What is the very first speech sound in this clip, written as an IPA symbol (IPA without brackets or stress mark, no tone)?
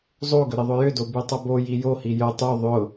zˤ